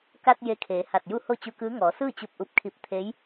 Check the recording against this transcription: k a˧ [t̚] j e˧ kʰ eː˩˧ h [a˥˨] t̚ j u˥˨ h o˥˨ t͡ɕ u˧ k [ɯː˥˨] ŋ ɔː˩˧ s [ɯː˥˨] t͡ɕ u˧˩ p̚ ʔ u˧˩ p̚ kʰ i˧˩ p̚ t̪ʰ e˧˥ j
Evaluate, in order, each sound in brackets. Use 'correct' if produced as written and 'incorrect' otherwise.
correct, incorrect, incorrect, correct

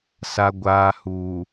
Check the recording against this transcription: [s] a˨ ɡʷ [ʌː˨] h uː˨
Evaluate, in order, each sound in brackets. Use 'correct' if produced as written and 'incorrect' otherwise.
correct, incorrect

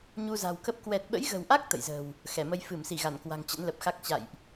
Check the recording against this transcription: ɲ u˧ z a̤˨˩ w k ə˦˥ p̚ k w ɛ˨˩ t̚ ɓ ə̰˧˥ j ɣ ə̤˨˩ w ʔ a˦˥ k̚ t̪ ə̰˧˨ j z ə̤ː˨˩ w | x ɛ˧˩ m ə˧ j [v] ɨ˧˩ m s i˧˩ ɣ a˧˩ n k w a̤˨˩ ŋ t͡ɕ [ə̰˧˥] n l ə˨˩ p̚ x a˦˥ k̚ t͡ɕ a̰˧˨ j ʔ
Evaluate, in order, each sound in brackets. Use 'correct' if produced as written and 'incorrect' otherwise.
incorrect, correct

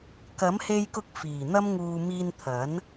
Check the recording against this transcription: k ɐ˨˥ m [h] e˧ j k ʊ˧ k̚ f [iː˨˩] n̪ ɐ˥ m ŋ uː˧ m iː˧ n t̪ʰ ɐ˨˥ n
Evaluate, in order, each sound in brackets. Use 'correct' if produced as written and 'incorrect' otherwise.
correct, correct

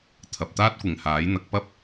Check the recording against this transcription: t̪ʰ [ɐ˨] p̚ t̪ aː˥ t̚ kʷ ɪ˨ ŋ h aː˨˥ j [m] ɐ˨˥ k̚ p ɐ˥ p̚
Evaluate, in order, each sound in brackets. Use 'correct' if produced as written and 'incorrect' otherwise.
correct, incorrect

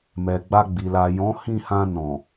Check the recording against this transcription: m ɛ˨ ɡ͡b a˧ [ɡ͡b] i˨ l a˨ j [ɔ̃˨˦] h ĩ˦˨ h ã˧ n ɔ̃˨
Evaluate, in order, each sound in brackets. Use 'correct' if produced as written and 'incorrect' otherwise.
correct, correct

